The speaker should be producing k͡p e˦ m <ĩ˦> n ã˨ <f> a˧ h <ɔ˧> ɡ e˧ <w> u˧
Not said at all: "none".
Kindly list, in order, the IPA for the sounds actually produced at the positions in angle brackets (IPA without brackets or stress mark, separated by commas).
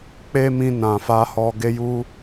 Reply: ĩ˧, f, ɔ˧, j